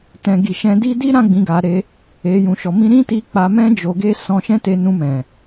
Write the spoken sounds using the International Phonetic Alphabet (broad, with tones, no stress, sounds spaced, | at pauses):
t ɛ̃˨ ɡ i˨ ʃ ɛ̃˧ d i˦ d i˦ ɾ ã˦ ɡ͡b ĩ˧ ɡ a˧ ɾ e˧ | e˧ j ũ˨ ʃ ɔ˨ m ĩ˧ ɾ ĩ˦ t i˧ k͡p a˧ m ɛ̃˦ d͡ʒ o˧ ɡ e˦ s ɔ̃˧ ʃ ɛ̃˦ t e˧ n ũ˧ m ɛ̃˨